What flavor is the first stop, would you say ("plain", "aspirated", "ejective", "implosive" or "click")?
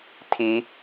aspirated